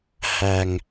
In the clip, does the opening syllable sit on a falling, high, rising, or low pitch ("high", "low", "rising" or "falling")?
low